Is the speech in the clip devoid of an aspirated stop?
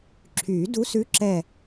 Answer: no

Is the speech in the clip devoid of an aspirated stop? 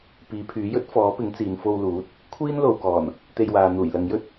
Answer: no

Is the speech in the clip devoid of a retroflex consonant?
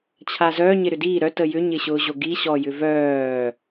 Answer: yes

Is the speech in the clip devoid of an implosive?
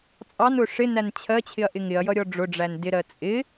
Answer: yes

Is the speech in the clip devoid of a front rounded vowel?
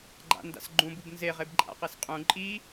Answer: yes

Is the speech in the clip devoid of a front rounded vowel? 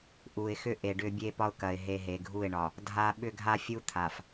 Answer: no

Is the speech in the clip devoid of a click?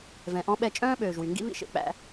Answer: yes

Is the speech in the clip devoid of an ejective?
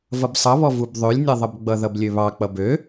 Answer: yes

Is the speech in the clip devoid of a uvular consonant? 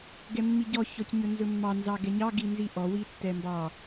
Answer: yes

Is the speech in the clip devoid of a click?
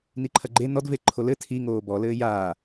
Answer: no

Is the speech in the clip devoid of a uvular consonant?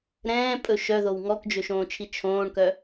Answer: yes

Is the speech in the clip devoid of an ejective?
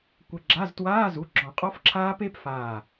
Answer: no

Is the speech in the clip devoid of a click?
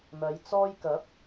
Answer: yes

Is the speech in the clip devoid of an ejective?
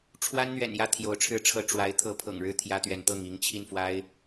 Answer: yes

